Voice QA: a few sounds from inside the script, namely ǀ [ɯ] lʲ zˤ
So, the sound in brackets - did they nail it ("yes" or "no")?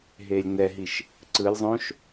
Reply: yes